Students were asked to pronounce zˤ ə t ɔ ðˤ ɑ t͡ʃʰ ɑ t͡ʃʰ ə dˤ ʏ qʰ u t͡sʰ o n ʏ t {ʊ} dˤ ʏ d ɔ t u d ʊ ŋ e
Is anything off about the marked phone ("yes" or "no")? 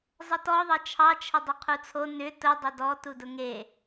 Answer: no